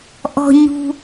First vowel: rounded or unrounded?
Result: rounded